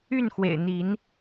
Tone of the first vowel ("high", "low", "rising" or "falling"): falling